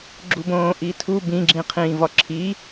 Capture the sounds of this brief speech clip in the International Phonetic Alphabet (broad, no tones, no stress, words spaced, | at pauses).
ɡ͡ǁubõːʔitʰu bĩ ɡ͡ǁĩqʰĩːvɒǁʰi